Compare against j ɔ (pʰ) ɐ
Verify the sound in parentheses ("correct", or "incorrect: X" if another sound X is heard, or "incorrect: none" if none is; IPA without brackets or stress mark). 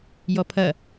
correct